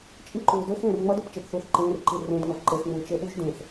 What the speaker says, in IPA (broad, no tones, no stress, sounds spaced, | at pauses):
t͡ʃʼ i ǃ uː d ø x ẽː r ŋ͡m ʌ d ø p t͡ʃ e p θ uː θ ǃ ẽː r ǃ i r ẽ d ŋ ʌ v ǃ e x ŋ͡m uː t͡ʃ e ɓ u ʒ d ẽ θ